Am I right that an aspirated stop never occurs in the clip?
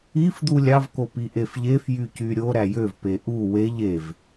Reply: yes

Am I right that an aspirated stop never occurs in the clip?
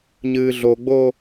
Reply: yes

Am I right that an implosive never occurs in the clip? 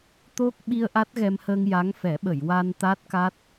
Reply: no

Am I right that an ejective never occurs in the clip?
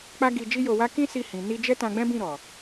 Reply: yes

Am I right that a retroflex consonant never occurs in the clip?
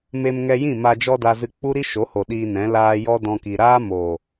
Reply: yes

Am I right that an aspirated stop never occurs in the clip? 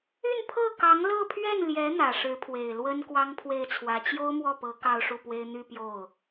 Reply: no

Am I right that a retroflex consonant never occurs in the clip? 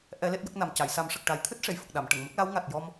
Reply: no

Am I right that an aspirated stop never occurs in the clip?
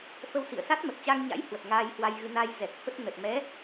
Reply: yes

